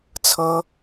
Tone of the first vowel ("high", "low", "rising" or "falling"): high